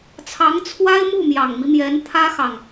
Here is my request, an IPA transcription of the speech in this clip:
t͡sʰɑ˧˥ŋt͡sʰwa˥ɪ̯ mu˥˩mjɑ˨˩ŋmi˦mjɛ˧˥n t̪ʰä˥xɑ˨ŋ

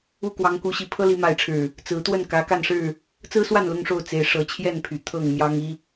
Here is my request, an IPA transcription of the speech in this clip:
u˥˨kwɑ˨˦ŋku˨˦ɕi˨˦ pʰɤ˦li˨˦ma˨˦ɪ̯ʈ͡ʂʰɻ̩˨˩ | t͡sɹ̩˨˦t̪wə˥˨n kä˨˦ka˥˨nʂɻ̩˥˨ | t͡sɹ̩˦swa˥˨n lʊ˦ŋʂo˥˨ʊ̯ t͡se˨˦ɪ̯ ʂɤ˨˦t͡ɕʰjɛ˥˨npʰy˨˩ t̪ʰɤ˥˨ŋmjɑ˦ŋi˦

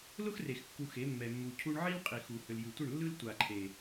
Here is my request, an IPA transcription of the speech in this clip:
lʊ˦xre˨x kːu˧xe˨˦ mːɛ˨mːu˨ cʰu˧ɳʕi˦l qʼi˨xu˨hʏ˨l jɯ˨tʷə˦˨ɳlːɯ˦l tʷa˨ǃʰe˨

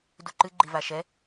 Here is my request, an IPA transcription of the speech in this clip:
duǃɨ ɡ͡ǃivaʃɛ

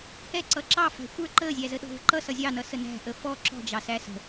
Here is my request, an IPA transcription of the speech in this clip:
hɛǀʌ ǁɑfæ̤ xʷə˞ ǃəːzʲæzə ɗɔ̤və̤ǃʌ sʌzʲɑnʌ sənæ̤ʔə fɔ ǁɔ̤d͡ʒɑsæ sə̤

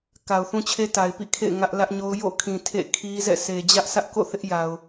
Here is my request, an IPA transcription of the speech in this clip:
ka˨ʊ̯θũ˦t͡ɕʰe˦ ta˨ɪ̯pḭ˦˨kʰḛ˦˨ɪ̯ ŋä˦ʔ lä˦ʔɲo˦ʊ̯ jo̰˦˨kʰĩ˨ tʰḛ˦˨kʰi˦zɛ̰˦˨ sʰe˨d͡ʑä˦ʔsä˦ʔko̰˦˨ θɪ˦ʔja˨ʊ̯

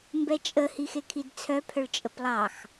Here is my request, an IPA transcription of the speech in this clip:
mbɛt͡ʃʼə hixekʰidt͡sʰœ pʰœɭt͡ʃʼəplˠɑx

